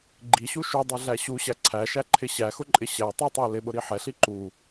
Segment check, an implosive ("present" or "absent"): present